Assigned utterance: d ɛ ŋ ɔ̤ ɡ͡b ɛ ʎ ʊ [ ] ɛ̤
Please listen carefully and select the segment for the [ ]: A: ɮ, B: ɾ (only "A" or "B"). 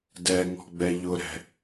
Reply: B